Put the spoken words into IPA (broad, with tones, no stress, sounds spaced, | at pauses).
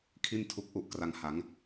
kʰ i˥˩ n tʰ u˦˥ k̚ ʔ u˦˥ ʔ k r a˧ ŋ h a˩˦ ŋ